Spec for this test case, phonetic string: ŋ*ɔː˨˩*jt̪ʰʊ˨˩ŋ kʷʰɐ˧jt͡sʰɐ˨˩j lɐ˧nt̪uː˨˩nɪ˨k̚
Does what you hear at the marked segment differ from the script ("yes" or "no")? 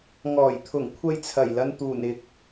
no